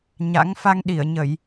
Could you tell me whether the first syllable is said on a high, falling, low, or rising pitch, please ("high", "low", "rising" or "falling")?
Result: rising